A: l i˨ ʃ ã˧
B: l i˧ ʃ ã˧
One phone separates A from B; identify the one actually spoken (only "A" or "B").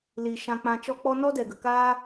A